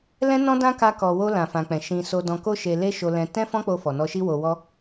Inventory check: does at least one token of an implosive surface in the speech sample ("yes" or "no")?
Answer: no